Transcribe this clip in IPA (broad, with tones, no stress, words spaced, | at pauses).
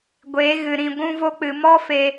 ɡʷe˨˦ɣɨ˨ ɾĩ˨ ɡʷũ˧vo˧k͡pɨ˨mɔ˦ fe˧